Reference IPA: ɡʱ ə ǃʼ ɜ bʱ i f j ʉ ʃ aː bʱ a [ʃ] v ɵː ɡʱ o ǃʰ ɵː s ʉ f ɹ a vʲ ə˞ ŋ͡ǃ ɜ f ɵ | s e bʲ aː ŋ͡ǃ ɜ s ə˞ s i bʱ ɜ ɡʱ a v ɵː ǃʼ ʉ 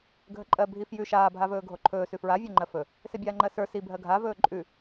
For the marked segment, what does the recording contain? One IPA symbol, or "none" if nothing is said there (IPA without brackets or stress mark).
none